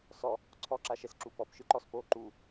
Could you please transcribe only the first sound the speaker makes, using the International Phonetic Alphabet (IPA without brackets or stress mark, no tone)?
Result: s